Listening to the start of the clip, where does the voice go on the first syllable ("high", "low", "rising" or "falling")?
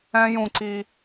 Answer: low